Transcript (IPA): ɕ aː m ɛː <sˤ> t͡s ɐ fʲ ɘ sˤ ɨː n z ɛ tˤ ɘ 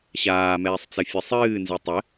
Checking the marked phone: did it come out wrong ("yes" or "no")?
no